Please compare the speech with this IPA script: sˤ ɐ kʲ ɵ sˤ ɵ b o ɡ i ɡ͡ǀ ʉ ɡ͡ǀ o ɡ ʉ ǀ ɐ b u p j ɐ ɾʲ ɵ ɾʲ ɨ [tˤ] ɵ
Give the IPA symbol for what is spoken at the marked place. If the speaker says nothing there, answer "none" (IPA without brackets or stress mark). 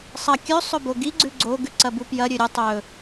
tˤ